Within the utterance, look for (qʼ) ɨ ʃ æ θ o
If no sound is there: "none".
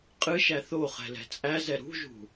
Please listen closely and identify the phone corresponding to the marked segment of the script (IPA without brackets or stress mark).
qʼ